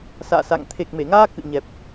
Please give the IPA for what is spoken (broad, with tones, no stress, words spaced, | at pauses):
sa̰ː˧˨sa̰˧˨ŋ t̪ʰe˨˩k̚me˧˩ŋaː˧ kɨ̰˧˨ɲɛ˨˩p̚